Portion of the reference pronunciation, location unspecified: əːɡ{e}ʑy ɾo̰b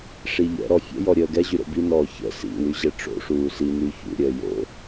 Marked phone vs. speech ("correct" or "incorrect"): incorrect